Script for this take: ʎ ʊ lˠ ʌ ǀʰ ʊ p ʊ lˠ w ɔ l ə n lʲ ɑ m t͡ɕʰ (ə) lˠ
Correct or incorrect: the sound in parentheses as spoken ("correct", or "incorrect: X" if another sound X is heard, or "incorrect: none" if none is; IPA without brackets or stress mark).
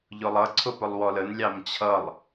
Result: incorrect: ʌ